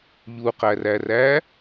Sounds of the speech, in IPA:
ʎuqæræræ

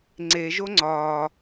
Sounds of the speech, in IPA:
ŋ͡ǀeʒo ŋ͡ǀɒː

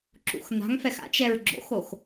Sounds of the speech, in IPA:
ǁṵxn̪a̤ŋfɛx a̰t͡ʃɛɹ ɡ͡ǁo̰xox

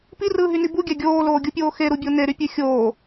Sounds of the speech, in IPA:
pirɯːɦyni buɡʲæ ɡʲoːloːɡʲupʲoː xeɾubʲo neɾypʲø xʲoː

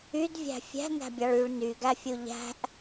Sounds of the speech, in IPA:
ydvʲæ̤ fʲæ̤næ̤bʲɑɭ yɭ nyɡæfʲu ʎæ̤ʔ

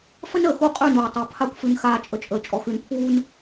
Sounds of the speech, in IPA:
fə˦nəː˨xu˦˨ qʼʉ˦˨nuː˨tˤu˨˦ pʰa˦kʷfʉ˧n xaː˧t͡ʃʼə˧t͡ʃʼəː˨ t͡ʃʼɔ˨xʉ˧n pʰuː˦n

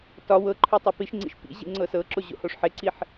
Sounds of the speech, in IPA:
tɒ wɤǃʰø tˤopiʃŋ͡ǀḭʃ pḭ ʑḭŋ͡ǀɤsɤǁo ʑo̰hoʂħeǀiħ

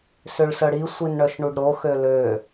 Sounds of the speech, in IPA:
søɭsœɽi sʷinɳœʃɳuɖɾo xølø

